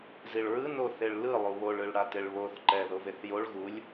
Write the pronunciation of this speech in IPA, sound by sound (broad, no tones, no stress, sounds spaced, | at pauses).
z i ɭ ɹ ɯ n o θ e ɭ l ɯ lˠ u β o ɭ ɯ ɭ ɽ a t e ɭ β o θ ǃ ɛ ð o v e θ j o ɭ ɣ u lʲ